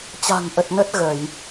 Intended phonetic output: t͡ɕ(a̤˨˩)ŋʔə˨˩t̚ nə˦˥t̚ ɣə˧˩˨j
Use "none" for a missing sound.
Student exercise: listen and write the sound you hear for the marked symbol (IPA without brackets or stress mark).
a̤˨˩